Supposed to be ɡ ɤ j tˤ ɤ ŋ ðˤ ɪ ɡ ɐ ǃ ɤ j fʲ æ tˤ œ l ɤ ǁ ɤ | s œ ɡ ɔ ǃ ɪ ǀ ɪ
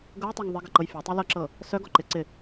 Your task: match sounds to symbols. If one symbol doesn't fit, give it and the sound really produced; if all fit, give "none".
æ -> ɐ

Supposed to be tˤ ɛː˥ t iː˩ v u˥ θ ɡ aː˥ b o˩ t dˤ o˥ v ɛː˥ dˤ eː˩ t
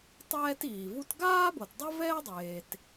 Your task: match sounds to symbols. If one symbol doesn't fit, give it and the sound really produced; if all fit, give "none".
θ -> t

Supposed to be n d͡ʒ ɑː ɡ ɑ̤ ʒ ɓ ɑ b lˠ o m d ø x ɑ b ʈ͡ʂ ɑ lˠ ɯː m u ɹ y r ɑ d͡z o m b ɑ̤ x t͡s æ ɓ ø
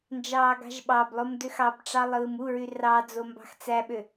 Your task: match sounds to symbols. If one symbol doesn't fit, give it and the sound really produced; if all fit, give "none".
none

